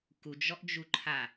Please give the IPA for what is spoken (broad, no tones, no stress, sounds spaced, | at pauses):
k u d͡ʒ ɔ ʔ d͡ʒ u ǃʰ a